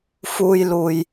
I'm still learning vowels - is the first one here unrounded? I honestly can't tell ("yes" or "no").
no